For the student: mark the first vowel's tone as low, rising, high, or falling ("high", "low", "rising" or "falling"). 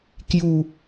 low